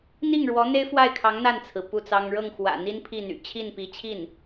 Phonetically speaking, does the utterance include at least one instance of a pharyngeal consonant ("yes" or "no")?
no